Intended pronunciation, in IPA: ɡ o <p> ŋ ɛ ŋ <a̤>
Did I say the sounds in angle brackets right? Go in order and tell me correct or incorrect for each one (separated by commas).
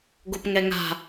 correct, correct